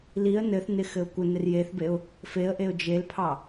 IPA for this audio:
l i ə̯ n ɘ θ n ɪ x ɘ ʊ̯ kʷ ɘ n ɪ r j e θ b e ʊ̯ | f e ə̯ ʔ e ʊ̯ d͡ʒ e l pʰ ɑ

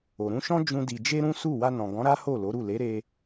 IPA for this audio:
o˨ ɾ ũ˧ ʃ ɔ̃˦ d͡ʒ ũ˦ d i˧ d͡ʒ e˦ ɾ ũ˦ s u˦˨ w a˧ n ɔ̃˨ ɡ ɔ̃˨˦ ɾ a˦ h o˦˨ l o˨˦ ɾ u˦˨ l e˨˦ ɾ e˧

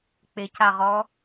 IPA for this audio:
k͡p ɪ c a ʁ ɔ

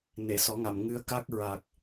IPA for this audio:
n e˨˩˨ s ɔ˨˩˦ ŋ a˨˩˨ m ŋ ɨ˧˥ ə̯ k a˦˥ k̚ ɹ a˨˩ k̚

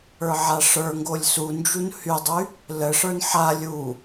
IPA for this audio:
ə˞ ʕ a ʂ ə˞ ŋ ɡ o lʲ s u n d͡ʒ u n h y dˤ y | l ə ʂ ə˞ n ħ a lʲ u

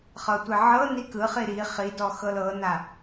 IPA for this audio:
χ ɤ tʷ e ʕ ɤ n i k ɯ χ i ɾ i χ i d ɔ x ɤ l ɤ n a

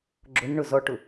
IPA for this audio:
ɡ͡ǁ ʊ n ɳ ʊ z ɔ ʈ ʊ

